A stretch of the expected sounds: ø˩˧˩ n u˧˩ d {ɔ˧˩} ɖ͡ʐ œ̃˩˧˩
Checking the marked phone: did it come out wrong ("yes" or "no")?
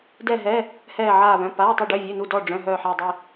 no